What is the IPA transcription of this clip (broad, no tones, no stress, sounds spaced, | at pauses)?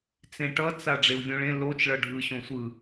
t͡s ẽ ʈ ʌ t͡s a ɖ͡ʐ e u̯ vʲ õ ɭ ẽ l o t͡ʃ ɭ ʌ ɖʱ ɯ ɕ õ sʷ ɯ